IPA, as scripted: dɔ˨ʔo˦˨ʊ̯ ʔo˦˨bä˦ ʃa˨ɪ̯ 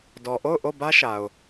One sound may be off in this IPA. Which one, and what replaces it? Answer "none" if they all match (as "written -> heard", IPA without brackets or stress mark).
ɪ̯ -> ʊ̯